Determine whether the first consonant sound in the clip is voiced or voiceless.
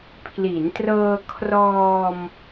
voiceless